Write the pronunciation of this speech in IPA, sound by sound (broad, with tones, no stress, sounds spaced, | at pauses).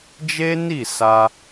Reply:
d͡ʒ e˦ n i˦˨ s a˧